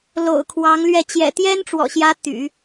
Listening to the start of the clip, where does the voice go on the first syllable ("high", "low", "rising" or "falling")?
low